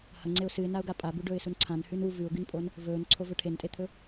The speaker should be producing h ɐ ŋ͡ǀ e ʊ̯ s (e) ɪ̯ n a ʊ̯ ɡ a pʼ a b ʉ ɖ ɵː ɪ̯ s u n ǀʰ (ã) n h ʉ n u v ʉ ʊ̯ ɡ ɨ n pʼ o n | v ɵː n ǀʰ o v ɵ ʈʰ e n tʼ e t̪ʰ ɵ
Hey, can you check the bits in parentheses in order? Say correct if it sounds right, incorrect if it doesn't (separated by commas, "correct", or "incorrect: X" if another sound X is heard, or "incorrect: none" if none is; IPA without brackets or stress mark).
incorrect: ɨ, correct